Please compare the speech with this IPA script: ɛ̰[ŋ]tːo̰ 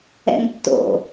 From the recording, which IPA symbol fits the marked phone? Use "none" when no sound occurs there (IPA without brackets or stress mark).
ŋ